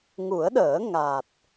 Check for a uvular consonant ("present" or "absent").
absent